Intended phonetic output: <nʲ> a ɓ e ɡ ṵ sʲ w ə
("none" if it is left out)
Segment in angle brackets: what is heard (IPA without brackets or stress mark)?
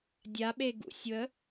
dʲ